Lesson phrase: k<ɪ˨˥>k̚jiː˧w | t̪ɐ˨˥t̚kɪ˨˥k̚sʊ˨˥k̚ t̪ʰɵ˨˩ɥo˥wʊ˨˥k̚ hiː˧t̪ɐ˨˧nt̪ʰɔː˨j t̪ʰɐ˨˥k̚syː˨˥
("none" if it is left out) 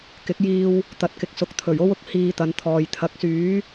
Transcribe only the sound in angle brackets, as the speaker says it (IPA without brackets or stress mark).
ɪ˨˥